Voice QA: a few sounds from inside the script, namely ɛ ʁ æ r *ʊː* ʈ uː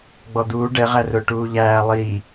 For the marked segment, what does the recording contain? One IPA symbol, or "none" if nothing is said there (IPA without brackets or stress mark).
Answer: ʊː